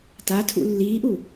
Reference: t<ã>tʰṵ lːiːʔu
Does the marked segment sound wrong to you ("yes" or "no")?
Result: yes